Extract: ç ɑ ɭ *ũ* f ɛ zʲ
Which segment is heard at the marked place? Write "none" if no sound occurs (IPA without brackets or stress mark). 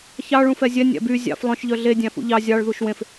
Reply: ũ